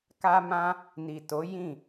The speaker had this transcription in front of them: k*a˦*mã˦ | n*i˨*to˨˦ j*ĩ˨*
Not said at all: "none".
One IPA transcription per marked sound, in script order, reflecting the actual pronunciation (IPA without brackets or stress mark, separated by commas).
a˦, i˨, ĩ˦˨